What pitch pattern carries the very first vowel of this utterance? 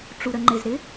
low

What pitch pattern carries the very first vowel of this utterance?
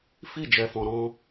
falling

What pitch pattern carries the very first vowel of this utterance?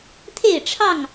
falling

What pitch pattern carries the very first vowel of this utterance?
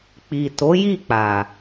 low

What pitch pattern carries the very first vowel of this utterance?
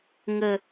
high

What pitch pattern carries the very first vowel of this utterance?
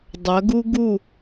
rising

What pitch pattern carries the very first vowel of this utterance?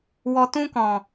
low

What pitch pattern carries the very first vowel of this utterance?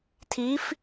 rising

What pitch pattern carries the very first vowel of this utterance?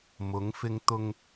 rising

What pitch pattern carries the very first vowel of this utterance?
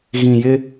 low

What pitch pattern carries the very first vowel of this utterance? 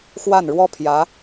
falling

